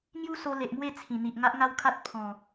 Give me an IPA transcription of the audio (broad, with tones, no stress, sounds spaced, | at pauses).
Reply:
ŋ j u˦ s o˧ l e˨ ʔ m w e˥˧ t͡sʰ ĩ˨˩ n̪ i˨ ʔ ŋ a˦ ʔ ŋ a˦ w kʰ a˦ t̚ pʰ ɔ̃˨˩